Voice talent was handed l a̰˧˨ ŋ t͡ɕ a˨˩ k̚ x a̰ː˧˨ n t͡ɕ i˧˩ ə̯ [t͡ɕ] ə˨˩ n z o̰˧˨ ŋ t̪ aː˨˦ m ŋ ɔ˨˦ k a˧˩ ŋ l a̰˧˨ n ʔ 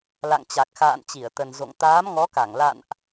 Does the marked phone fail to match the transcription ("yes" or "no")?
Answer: yes